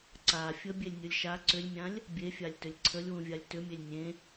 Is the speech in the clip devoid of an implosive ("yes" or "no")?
yes